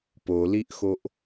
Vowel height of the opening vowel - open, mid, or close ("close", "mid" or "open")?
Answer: mid